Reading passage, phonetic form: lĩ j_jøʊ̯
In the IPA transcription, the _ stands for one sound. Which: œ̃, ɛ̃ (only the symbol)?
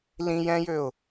ɛ̃